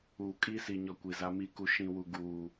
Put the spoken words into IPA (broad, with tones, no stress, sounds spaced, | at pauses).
uː˨ kʼ i˦ s i˨ ɲ ɔ˨ kʷ i˨ z a˦ m i˦ k u˦ ʃ ĩ˦ w u˦ ɡ uː˦